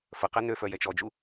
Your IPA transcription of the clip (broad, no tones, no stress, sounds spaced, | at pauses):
f ə q ɛ n ø f œ j ɛ t͡ʃ ɔ d͡ʒ u